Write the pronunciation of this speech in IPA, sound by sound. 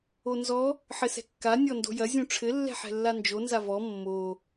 o n z ɔ | ħ ɘ s ɛ̤ kː a nʲ ɔ n d o̤ j ɐ zʲ ũ ʈ͡ʂʰ ɘ lː ɛ̤ ħ ɛ̤ lː a n d͡ʒ o n z a v ɔ mː o

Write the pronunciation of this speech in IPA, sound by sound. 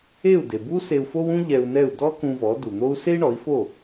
e˥˩ u̯ d e˩ b u˥ s e˧ u̯ f o˥ w ũ˥ ʎ ɛ˧ u̯ n ɛ˥˩ u̯ d ɔ˥ k ũ˧ v ɔ˩˥ d u˩ n̪ o˥ u̯ s e˥ i̯ ɳ ɔ˩˥ i̯ f o˥˩

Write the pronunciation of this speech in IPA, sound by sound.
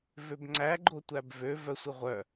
v ø b ŋ͡ǀ æ ɡ͡ǃ o tʷ æ b v ø v œ sʷ i ʁʷ œ

